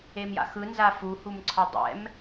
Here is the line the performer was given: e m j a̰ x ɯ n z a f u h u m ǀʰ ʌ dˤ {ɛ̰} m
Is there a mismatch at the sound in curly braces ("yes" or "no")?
no